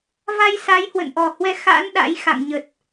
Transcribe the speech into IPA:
v a˧ j s a˨˦ j h w ə̰˧˨ n ʔ ɔ˨˩ h w ɛ˧ x a̰˧˥ n ɗ a̰˧˥ j x a̰˧˨ ŋ ɲ ə˨˩ t̚

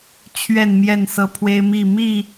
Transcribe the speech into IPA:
t͡ɕʰ ɥ ɛ˥˨ n m j ɛ˥˨ n s ɤ˦ pʰ w e˦ ɪ̯ m i˥˨ m i˥˨

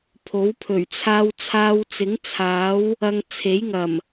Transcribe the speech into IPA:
pʰ o˨˥ w pʰ ɵ˨˩ ɥ t͡sʰ aː˧ w t͡sʰ aː˧ w t͡s ɪ˨˥ ŋ t͡sʰ aː˨˥ w | ɐ˧ ŋ t͡sʰ e˨˥ j ŋ ɐ˨˩ m

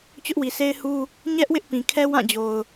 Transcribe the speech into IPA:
t͡ɕ ʊ˦ ʔ w i˨ sʰ e˦ ɪ̯ h u˦ | ɲ ɛ˦ ʔ w ɪ˦ ʔ p ĩ˨ kʰ ɛ˦ w ã˦˨ d͡ʑ o˨ ʊ̯

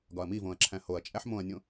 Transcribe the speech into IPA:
ɡ ɒ ɐ̯ m i v õ ɐ̯ ǁʰ æ̃ h o ɐ̯ t͡ʃʼ æ ħ m õ ɐ̯ nʲ õ

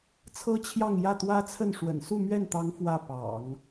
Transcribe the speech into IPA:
t͡sʰ ɤ˥ t͡ɕʰ j ɑ˥˧ ŋ j ä˥˩ t̪ w ä˥ t͡sʰ ə˥˩ n ʂ w ə̰˨˩ n s u˥˧ m ɥ ɛ˥˩ n t̪ ɑ˧˥ ŋ f w ä˥˩ p ɑ̰˨˩˦ ŋ

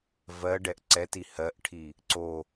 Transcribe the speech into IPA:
v ɜ ɖ ɛ ʔ ǀ ɛ t i h ɜ ʔ ʈʰ i | ǀ o

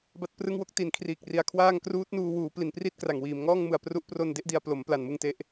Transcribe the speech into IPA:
b a˦˥ t̚ p r ɯ˦˥ ŋ w o˥˩ k̚ t i˩˦ n kʰ r iː˨˩ k̚ r i˩˦ a̯ kʰ w aː˥˩ ŋ k r uː˦˥ t̚ n uː˧ w uː˩˦ p l i˩˦ n p r i˥˩ t̚ k r a˨˩ ŋ w iː˩˦ m ŋ ɔː˥˩ ŋ m ɯ˩˦ a̯ p r u˦˥ ʔ p r o˧ n d e˥˩ ʔ d i˧ a̯ p l o˩˦ m p l a˨˩ n m ɯ˧ ŋ t e˦˥ ʔ

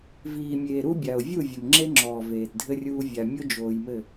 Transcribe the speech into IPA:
v iː˨ mʲ eː˨ ɾ u˦ bʲ a˨ ʊ̯ vʲ u˦˨ vʲ ɘ˨ m ŋ͡ǁ e˦ ŋ͡ǁ ɔː˨ v eː˨ t dʱ ɘ˦ rʲ uː˦ vʲ a˨ mʲ o˦ d͡ʒ oː˨ j m ɘ˦˨

